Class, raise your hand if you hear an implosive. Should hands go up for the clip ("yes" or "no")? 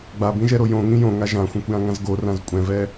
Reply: no